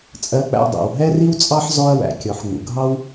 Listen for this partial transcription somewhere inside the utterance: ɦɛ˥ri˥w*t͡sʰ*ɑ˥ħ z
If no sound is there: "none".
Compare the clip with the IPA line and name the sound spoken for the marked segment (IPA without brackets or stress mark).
t͡sʼ